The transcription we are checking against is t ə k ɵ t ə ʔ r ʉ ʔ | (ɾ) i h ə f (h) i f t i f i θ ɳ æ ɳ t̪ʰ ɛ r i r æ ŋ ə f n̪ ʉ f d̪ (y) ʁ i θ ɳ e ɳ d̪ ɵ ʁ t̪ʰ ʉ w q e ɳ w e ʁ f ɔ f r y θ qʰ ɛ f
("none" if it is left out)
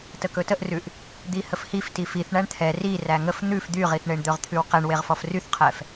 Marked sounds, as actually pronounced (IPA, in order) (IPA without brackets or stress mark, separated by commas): d̪, h, y